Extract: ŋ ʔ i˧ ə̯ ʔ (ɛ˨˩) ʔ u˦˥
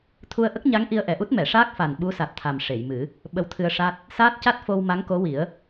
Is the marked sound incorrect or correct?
correct